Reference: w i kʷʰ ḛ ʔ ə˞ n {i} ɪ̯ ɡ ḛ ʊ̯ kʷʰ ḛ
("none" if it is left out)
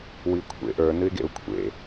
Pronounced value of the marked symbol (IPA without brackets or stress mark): ɨ